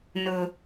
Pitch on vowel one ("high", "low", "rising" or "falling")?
low